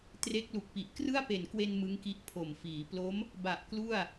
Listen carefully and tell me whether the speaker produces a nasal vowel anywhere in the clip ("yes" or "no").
no